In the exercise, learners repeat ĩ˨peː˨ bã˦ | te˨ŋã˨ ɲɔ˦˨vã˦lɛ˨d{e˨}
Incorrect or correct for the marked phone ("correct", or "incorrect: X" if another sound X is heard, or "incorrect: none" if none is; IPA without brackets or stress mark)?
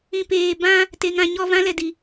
incorrect: i˨